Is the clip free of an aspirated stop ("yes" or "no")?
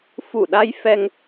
yes